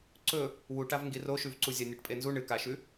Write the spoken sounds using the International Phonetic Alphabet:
ǀɵ | wuʈav ŋɡiroʃʉvǀu zʲanʲɐʈpʼenzu ɳɨkaʃʉ

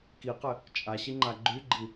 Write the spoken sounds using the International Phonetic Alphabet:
kiqɘ | t͡ʃʼaɕiŋ͡ǃa ɡ͡ǃyɡ͡ǃi

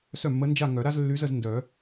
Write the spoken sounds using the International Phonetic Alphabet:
sœ˥˩mːə˧˥nd͡ʒa˥˧ŋœ˨˩˦ ɾa˥zlːy˧˥zə˥˧z ndœ˨˩˦

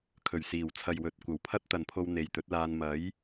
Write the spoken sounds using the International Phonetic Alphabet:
kʰɵ˨˩ɥsiː˨˩wt͡sʰɐ˨jwɵ˨t̚ kʷɐ˨˩wpʰɐ˥t̚t̪ɐ˨npʰo˧w n̪e˨jt̪ɵ˨˥t̚laː˧n mɐ˨˥j

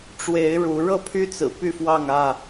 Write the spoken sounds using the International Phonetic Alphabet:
ʈ͡ʂwe˨˦ɪ̯ ɻu˨˦ ɻɤ˥˨pʰy˦t͡sɹ̩˨˩ py˥˨fwɑ˥˨ŋä˥˨

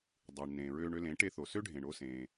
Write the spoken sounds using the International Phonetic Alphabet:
dˤɯː˩ɳnẽː˩ɹøː˧ɳ ø˧lẽ˩˥ʈe˧ θo˩sø˥ ɖʱẽː˩ɳ oː˧sẽː˩

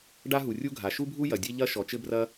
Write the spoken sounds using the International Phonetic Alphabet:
ɖa˥ɦu˩rʲu˥ɡʱa˩ ʃu˥bʱu˥ jɐ˩dʲe˥ ʎɐ˥ʃɔ˩ t͡ʃɘ˥brɐ˥

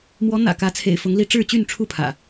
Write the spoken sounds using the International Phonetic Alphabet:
mwɔ˨˦ n̪ä̰˨˩kä˨˦ t͡sʰḛ˨˩ɪ̯fʊ˨˦ŋli˥˨ ʈ͡ʂɻ̩˥˨t͡ɕy˥˨nʈ͡ʂʰu˥˨pʰä̰˨˩

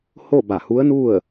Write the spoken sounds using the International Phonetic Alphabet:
ho˥˨ba˧˩hu˧˥ə̯nu˥˨ə̯

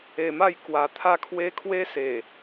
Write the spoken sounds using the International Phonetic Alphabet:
e˧ma˥˧j kwa˧t̪ʰa˦kʰwe˦ kʰwe˦se˨˩

